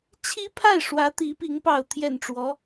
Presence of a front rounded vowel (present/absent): absent